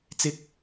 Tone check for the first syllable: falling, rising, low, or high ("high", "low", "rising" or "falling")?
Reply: high